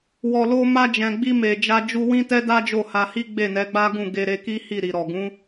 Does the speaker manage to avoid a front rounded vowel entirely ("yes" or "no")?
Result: yes